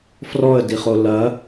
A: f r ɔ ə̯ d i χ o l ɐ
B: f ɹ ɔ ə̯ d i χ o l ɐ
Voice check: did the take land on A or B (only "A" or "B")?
A